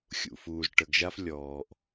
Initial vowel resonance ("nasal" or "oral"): oral